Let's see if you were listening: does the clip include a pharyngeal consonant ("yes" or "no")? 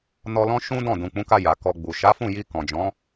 no